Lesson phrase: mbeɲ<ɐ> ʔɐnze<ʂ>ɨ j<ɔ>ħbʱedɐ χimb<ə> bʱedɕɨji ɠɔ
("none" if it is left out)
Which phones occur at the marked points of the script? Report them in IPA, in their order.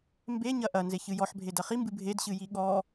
ɐ, ç, ɔ, ɨ

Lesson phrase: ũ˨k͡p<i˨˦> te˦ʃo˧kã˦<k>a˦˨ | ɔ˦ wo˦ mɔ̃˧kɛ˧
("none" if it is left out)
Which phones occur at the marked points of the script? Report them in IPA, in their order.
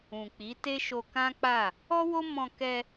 i˨˦, k͡p

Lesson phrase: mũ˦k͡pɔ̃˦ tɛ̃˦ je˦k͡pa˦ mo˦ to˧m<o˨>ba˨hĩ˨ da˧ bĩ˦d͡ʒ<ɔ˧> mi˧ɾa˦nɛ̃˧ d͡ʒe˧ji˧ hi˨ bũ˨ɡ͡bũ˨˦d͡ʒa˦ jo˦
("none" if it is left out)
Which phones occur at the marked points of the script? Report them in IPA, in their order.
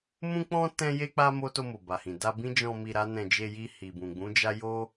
o˨, ɔ̃˧

